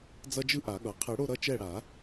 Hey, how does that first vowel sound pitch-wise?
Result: high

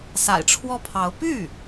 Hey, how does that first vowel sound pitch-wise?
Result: low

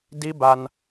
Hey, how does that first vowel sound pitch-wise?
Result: rising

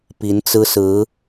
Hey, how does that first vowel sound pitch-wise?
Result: rising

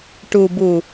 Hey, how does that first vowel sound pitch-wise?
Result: low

